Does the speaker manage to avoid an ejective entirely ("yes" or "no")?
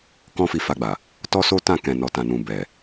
yes